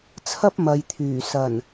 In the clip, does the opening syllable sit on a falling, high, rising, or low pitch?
high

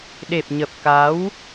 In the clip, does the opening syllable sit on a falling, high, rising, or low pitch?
low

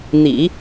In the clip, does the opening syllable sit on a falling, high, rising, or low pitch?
low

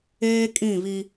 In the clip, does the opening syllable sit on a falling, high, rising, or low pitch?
high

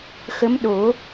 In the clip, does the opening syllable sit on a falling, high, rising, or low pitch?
rising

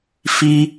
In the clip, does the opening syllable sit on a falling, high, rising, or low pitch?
high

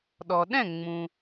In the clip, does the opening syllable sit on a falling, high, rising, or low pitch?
low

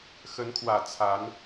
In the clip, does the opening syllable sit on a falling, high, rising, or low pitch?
rising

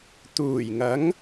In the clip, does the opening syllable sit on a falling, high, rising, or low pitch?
low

